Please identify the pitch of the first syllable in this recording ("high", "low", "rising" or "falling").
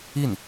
falling